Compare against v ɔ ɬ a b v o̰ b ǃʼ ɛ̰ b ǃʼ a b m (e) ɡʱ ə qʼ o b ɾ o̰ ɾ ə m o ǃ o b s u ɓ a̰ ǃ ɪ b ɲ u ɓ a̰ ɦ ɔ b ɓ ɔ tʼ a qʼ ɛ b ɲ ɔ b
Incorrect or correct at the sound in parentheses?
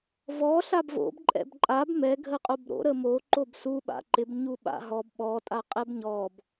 incorrect: ɛ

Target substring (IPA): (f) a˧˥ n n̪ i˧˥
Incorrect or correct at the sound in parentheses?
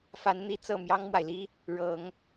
correct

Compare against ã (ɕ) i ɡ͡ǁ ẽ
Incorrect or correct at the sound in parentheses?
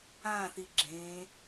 incorrect: θ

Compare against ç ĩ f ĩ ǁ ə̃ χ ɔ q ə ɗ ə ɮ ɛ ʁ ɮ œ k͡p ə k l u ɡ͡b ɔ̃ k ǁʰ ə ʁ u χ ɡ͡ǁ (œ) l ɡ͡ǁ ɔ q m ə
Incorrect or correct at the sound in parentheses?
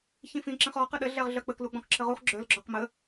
correct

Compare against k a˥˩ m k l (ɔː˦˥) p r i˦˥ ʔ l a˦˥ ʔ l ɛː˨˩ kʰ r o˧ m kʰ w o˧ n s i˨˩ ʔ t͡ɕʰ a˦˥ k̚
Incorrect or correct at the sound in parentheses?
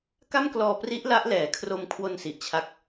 incorrect: ɔː˧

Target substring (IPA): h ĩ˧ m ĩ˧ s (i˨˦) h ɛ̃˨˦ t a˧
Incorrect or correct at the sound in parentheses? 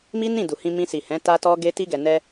incorrect: i˨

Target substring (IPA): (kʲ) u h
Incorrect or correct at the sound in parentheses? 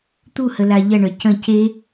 incorrect: t̪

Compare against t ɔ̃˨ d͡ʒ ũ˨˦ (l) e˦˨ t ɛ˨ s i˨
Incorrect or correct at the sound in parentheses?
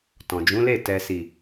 correct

